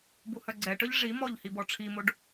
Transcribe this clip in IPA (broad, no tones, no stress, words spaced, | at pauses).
buhœɡ͡ǀɛʈœʎ ʐimɔʎ hibɔʈ͡ʂʰimoɖ